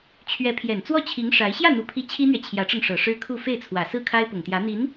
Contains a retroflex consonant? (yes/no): yes